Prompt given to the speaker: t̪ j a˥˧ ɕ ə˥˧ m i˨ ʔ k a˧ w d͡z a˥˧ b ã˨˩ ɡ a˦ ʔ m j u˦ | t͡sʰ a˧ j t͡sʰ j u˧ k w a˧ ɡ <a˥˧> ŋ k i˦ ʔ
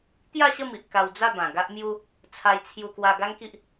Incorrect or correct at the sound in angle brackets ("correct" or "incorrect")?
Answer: incorrect